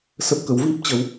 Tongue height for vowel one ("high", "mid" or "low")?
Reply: mid